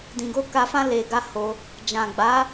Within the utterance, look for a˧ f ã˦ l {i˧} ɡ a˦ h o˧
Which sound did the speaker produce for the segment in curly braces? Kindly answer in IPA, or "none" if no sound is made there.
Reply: e˧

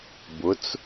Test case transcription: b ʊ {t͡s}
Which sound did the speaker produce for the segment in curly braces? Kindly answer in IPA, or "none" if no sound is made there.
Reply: t͡s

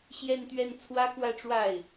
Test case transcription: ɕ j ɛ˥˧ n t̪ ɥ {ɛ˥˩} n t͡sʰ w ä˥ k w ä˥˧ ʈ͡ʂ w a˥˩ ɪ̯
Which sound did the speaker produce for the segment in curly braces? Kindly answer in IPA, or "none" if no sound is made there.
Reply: ɛ˥˩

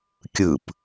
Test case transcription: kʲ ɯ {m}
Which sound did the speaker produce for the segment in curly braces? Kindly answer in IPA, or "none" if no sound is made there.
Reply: p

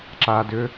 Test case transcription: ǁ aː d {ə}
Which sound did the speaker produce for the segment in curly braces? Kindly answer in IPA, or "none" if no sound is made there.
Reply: ʏ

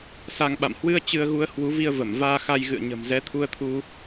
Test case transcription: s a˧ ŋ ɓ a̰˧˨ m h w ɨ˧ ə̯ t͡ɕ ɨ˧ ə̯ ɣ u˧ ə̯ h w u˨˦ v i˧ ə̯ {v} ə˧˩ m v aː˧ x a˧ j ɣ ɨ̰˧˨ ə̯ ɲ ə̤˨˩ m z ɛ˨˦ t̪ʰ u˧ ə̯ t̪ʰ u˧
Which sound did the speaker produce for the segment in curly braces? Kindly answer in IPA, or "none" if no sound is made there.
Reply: v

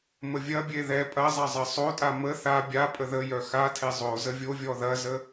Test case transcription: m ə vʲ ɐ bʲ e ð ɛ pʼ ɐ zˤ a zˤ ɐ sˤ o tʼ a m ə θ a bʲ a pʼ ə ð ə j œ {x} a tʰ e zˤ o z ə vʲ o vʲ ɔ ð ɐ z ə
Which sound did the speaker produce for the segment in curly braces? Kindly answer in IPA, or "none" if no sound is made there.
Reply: x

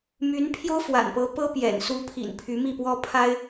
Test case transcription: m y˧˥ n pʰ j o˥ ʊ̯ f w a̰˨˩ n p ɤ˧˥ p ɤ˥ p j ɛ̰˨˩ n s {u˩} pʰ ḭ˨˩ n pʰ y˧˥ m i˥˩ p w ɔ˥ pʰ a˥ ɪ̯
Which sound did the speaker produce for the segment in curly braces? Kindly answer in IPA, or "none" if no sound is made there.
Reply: u˧˥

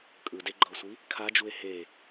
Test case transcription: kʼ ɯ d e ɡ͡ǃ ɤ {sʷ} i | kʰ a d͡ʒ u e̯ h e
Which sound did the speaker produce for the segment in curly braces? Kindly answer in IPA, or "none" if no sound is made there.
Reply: sʷ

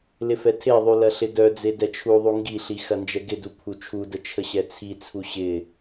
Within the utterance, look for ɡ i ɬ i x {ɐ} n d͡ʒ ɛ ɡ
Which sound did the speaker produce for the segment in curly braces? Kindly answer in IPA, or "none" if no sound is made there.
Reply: ɐ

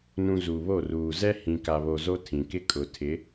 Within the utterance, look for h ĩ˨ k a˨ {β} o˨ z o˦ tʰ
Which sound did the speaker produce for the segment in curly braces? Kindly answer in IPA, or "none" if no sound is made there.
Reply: β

